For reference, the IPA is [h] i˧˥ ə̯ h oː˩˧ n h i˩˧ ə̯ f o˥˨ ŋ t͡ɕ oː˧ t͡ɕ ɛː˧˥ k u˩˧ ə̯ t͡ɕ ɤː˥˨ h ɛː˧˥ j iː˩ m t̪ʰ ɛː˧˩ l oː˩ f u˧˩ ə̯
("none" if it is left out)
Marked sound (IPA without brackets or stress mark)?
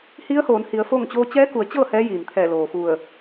h